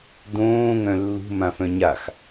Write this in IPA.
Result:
d õː ŋ œ̃ lː ṳ m ã f œ̃ ɲ a x

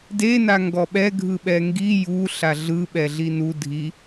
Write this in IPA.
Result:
d e n a ŋ ɡ ɔ ɓ ɛ ɡʱ ɯ ɓ ɛ ŋ ɡ i j u ɬ a ɮ ɯ ɓ ɛ ɮ i n u dʱ i

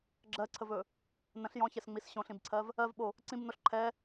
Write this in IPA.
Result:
ɡ͡ǁ ɜ ǀʰ ə v ɵ | n ə̃ ɬ j ɔ̃ ç ɛ s ŋ͡m i s ɕ õ ɬ ĩ b ǀʰ ɜ v | ɜ v ɓ o | ǀ ĩ b n o ɬ ǃʰ ɛ

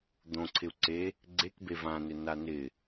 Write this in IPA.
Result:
d̪ õ ǀʰ ɪ u̯ ǀ e | ɡ͡ǀ e k b e v ã n ɪ n a n ɪ

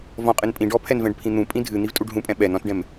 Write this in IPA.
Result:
v ɔ̃ qʼ ɨ n pʼ ĩ ɖ ɔ pʰ ɛ n v ɛ̃ ɖ pʰ ĩ n̪ ũ pʼ ĩ dʱ ɨ n̪ i v tʼ u ɖ ɦ ũ pʼ ɛ̃ ɓ ɛ n ɔ̃ t ɖ ɛ̃ m

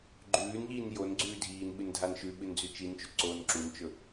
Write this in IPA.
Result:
ɡ͡ǃ ʉː n ʎ iː n j o n ɡ͡ǀ ʉː dʱ iː n ɓ ɨ n dʱ a n ʃ ʉ ɓ ɨ n d͡z ʉ t͡ʃ i n t͡ʃ ʉ ǀ oː n ǁ u n t͡ʃ ɵ

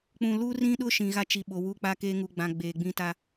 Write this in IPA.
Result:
k͡p ũ˨ l u˦ r ĩ˦ ɗ ʊ˦ ʃ ĩ˨ ɣ a˦ t͡ʃ i˨ ɓ o˨ w u˦ k͡p a˦ k eː˦ ŋ u˨ ɡ͡b ã˨ ɡ͡b eː˨ ɡ͡b ĩ˦ t a˦

